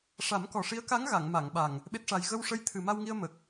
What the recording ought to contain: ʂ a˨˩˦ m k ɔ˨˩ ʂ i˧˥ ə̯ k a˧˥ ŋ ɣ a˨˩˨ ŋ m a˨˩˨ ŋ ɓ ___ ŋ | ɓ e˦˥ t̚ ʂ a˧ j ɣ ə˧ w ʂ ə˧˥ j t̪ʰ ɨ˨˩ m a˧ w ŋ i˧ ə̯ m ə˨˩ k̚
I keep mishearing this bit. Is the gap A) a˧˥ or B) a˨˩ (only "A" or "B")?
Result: B